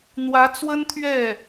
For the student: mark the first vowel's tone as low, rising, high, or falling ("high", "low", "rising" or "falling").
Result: rising